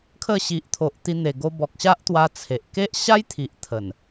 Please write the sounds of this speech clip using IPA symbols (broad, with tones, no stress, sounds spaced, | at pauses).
kʰ ə˥˧ ɕ i˨ ʔ t̪ʰ o˨ ʔ t̪ i˧ n̪ e˨˩ ɡ o˧ b ɔ˨ k̚ ɕ a˦ ʔ t̪ w a˧ t͡sʰ e˨ ʔ k e˦ ʔ ɕ a˦ j t̪ʰ i˨ ʔ t̪ʰ ə˨˩ n